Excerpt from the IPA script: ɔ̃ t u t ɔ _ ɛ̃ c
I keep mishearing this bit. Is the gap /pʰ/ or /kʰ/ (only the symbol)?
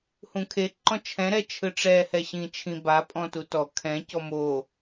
kʰ